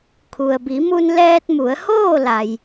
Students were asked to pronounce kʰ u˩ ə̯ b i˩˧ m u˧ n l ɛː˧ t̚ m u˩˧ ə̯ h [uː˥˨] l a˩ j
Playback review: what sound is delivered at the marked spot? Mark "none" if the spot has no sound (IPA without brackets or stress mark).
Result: oː˥˨